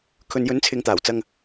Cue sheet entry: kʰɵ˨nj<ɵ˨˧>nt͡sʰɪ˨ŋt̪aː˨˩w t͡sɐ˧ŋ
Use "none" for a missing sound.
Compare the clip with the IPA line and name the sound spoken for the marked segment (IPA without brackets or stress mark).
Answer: ɵ˨˥